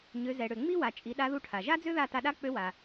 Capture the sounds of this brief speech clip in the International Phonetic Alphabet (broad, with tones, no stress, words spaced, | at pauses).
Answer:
ɲø˩˧zɛ˩ɽø˩ ŋ͡mi˥wa˩t͡ʃʼi˩˧ ɗa˧˥ðu˧˥ʈʰa˩ ʒa˥d͡zø˥ða˧ ta˧ɗa˥k͡pø˧˥wa˩